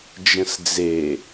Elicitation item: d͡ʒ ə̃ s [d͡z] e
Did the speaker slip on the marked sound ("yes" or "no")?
no